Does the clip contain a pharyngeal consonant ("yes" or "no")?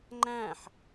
yes